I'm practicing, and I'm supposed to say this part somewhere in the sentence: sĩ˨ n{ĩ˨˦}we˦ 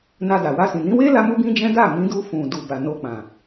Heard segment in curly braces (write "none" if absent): ĩ˨˦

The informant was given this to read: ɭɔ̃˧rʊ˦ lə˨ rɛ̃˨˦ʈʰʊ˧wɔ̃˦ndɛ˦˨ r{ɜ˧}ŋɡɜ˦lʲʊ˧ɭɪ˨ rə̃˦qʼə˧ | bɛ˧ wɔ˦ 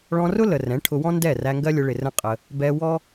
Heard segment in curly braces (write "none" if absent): æ˧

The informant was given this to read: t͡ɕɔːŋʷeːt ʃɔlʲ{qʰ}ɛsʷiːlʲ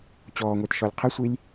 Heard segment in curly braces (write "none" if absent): qʰ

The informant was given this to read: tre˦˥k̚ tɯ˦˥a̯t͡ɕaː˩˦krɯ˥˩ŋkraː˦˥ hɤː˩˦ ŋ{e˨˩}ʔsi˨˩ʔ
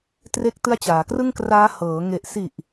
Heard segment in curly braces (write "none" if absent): e˨˩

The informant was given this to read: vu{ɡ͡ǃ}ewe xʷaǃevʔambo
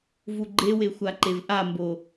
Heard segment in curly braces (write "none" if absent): ɡ͡ǃ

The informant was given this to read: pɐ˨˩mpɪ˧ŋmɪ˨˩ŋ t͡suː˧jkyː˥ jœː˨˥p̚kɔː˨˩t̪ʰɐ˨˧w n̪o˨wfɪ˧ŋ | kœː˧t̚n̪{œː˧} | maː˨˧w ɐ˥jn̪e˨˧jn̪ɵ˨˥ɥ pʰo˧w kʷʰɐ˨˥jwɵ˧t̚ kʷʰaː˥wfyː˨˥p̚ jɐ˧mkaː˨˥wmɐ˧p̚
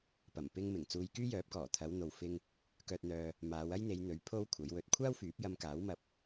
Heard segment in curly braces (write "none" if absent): œː˧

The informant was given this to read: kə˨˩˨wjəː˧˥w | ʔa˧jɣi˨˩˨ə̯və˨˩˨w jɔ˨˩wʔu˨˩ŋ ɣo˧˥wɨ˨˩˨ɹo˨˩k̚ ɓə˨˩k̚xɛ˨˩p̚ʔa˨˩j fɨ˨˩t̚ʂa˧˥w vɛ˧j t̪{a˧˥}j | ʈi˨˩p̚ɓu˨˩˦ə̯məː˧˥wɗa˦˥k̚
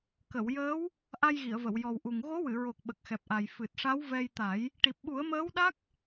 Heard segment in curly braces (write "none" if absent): a˨˩˦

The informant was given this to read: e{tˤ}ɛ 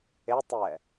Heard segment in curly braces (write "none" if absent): tˤ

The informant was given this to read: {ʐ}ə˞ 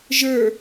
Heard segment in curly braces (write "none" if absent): ʒ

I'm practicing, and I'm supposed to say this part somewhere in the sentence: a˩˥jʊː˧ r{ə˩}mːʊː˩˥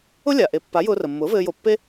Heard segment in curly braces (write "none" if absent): ə˩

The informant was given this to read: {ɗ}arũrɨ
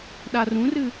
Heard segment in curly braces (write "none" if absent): ɗ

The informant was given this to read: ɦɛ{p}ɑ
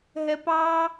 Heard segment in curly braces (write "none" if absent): p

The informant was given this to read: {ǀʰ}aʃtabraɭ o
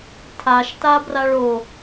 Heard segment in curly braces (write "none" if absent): tʰ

